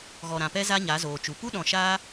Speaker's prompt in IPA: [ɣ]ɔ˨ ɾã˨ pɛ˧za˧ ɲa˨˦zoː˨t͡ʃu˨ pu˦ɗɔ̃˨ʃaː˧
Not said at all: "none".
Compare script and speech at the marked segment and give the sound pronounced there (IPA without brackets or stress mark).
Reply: ɣ